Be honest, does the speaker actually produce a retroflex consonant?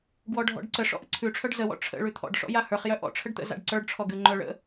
yes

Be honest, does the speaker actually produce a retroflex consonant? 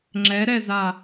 no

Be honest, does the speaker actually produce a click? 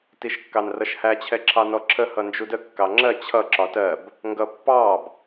yes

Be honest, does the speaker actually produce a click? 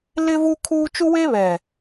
no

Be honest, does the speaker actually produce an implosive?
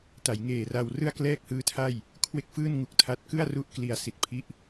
no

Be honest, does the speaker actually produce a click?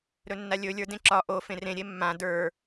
yes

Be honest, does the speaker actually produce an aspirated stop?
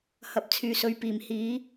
yes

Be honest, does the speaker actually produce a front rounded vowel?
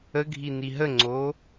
no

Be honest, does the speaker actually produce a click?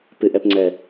yes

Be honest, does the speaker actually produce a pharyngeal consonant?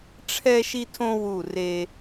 no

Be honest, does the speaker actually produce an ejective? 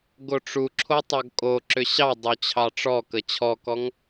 yes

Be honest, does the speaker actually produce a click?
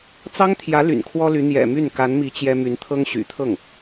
no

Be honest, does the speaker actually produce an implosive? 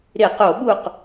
yes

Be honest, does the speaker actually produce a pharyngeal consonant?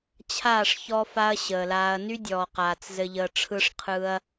no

